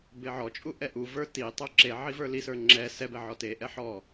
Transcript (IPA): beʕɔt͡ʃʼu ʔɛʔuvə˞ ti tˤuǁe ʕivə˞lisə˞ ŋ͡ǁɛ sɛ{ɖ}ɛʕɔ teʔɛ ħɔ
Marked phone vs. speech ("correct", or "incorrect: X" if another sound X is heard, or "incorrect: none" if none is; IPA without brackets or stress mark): incorrect: b